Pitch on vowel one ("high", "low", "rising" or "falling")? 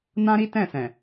high